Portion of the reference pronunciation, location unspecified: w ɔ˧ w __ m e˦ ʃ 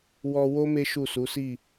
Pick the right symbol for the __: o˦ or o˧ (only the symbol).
o˦